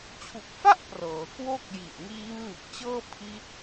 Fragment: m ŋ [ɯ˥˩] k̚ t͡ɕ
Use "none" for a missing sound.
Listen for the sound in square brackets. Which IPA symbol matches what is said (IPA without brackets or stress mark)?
ɯ˨˩